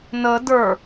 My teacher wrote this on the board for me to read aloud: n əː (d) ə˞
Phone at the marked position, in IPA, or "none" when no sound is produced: d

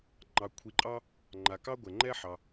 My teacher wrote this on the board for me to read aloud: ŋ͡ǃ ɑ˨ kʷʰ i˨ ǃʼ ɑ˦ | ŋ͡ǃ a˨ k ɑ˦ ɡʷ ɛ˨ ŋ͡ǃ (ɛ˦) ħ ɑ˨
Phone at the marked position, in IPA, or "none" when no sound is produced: ɛ˦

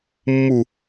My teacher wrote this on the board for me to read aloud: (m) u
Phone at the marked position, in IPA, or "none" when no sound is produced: mː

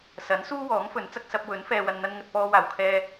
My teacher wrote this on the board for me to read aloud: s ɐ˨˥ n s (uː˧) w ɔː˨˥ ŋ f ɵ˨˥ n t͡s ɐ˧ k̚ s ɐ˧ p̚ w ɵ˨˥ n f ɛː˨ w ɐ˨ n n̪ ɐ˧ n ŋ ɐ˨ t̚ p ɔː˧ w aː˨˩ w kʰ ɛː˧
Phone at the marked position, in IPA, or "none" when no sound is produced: uː˥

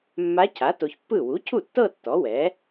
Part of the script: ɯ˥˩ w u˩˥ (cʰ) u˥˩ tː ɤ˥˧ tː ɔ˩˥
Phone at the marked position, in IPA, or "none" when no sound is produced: cʰ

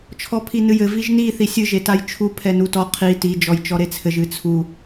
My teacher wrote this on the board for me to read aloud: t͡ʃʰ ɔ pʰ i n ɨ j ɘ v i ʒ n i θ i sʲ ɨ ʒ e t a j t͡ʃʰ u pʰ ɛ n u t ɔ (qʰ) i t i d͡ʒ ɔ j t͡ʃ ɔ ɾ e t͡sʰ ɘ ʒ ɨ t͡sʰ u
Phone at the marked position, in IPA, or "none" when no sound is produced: qʰ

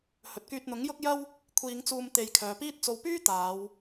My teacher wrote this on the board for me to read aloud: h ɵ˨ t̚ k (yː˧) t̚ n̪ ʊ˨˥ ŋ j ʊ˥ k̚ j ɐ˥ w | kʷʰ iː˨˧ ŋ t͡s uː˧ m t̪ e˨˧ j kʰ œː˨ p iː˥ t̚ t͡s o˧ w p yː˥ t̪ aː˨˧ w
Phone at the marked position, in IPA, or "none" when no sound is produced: yː˧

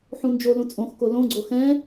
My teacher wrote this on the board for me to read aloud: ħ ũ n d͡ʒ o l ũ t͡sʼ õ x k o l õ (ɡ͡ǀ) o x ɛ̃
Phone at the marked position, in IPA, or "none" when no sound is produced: ɡ͡ǀ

